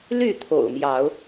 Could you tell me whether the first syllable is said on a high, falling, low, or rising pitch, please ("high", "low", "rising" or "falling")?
falling